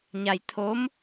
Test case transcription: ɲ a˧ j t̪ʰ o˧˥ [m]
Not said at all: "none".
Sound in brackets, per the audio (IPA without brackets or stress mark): m